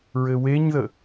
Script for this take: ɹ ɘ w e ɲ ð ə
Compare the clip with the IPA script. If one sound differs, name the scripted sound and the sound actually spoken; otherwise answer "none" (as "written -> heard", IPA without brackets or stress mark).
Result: none